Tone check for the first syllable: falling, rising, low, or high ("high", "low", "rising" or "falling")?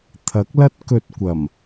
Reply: rising